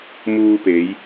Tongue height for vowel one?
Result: high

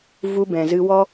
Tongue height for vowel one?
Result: high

